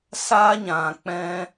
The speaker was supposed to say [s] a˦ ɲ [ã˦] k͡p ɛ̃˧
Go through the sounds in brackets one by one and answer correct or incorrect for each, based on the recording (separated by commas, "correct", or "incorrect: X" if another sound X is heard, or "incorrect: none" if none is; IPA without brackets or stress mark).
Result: correct, incorrect: ã˨